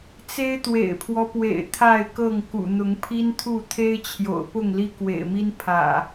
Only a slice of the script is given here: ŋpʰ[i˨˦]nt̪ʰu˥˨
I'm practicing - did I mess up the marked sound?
yes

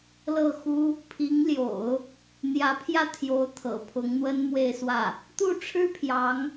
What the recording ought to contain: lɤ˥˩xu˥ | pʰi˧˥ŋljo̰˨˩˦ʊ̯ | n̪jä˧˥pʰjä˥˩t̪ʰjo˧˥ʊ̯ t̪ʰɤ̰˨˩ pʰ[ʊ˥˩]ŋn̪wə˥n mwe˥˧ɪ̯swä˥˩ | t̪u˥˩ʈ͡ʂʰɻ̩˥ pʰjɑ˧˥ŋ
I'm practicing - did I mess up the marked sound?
yes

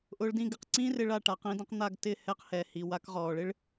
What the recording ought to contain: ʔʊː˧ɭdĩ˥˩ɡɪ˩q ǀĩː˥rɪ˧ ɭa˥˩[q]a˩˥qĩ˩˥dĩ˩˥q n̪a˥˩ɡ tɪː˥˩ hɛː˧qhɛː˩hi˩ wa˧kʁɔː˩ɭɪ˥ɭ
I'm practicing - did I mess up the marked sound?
yes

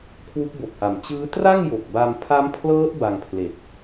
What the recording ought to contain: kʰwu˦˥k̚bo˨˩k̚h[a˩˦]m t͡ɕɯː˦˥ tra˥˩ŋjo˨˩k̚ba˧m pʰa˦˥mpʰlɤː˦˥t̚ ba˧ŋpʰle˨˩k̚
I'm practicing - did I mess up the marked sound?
no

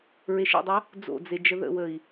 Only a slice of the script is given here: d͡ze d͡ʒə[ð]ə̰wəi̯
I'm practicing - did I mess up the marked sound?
no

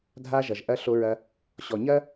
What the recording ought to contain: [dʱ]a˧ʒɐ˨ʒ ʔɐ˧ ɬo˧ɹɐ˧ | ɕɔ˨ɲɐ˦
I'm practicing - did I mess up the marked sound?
no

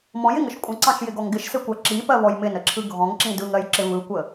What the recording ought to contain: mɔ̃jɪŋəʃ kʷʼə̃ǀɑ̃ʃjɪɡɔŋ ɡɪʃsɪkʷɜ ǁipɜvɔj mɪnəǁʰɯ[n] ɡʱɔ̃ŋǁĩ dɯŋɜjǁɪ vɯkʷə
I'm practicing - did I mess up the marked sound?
yes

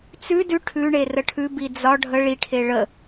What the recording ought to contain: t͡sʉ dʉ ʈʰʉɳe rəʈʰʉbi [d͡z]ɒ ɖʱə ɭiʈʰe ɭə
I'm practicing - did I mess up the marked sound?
no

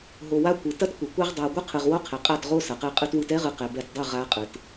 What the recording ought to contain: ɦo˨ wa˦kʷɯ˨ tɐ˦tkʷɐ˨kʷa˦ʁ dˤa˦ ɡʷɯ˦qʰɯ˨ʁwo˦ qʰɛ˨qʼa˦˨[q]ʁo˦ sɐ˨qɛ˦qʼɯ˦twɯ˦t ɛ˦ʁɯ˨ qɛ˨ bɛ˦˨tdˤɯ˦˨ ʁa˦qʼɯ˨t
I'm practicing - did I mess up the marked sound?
yes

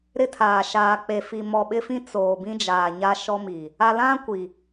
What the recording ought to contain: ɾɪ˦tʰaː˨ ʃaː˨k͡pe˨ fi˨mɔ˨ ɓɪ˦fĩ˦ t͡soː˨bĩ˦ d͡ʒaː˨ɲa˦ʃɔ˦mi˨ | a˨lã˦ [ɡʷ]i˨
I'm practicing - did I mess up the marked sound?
yes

